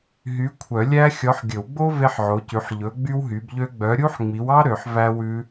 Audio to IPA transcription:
ɦ y˨˦ kʷʰ œ˨˩˦ lʲ æ˦˥ xʲ ɔ˨˦ ħ ɡʲ ɵ˨˩˦ w ɡ͡b o˦˥ v e˦˥ ħ ʕ o˨˦ c ʉ˨˦ ħ ʎ ɵ˨˦ ɡ͡b y˦˥ w ɦ y˨˦ b ʎ ø˦˥ ɡ͡b œ˨˦ ɾʲ u˦˥ ħ ŋ͡m i˨˦ w ɑ˦˥ ɾ ø˨˦ ħ v æ˦˥ w ʉ˦˥

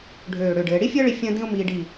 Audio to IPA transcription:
ɖʱ øː˧˩ ɽ ø˧˩ ɖ ɘː˩˧ ɽ i˥ fʲ əː˥ ɭ i˧ fʲ ə̃ː˥ d ĩ˥ ʊ̯ m iː˧ ɖ i˧˩

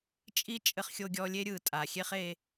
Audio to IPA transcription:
t͡ʃʼ i˥ t͡ʃʼ ɘ˧ χ xʲ o˧ ɡʲ ɔ˧ lʲ e˥ ɾʲ ɯ˩ tʼ a˩ xʲ e˥ χ e˧

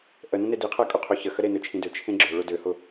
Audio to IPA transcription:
ʔ ə n ə̃ n e d i qʰ ɜ kʼ ʊ qʰ ø ç ə x ə ɾ e n ø t͡ʃʰ ĩ d ø t͡ʃʰ ẽ ɡ͡ǁ ø ɭ ʊ d ø h ʊ

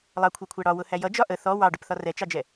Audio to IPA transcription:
lˠ ɑ kʷʰ ɜ kʷʰ æ ɽ ɒ w ʊ h æ j ʌ d͡ʒ ɒ ʔ ə θ ɔ w ɑ ɖ ʊ p θ ɒ r ɛ t͡ʃ ɑ d͡ʒ ɛ

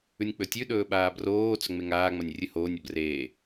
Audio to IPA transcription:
ʉ nʲ k͡p ɵ tʲ ʉ ɗ ɵː ɓ aː b r oː t͡s ɵ ŋ͡m e ŋ aː ŋ͡m ɐ nʲ rʲ ɨ h oː nʲ ɐ b r eː

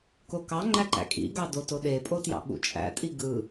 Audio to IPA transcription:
k o k ɑ ŋ͡ǃ æ ǃ æ̰ kʼ ḭ ɡ ɑ d o t o ɗ e pʼ o t j ɑ̰ ɓ ṵ t͡ʃʼ æ̰ tʼ i ɡ ɯ

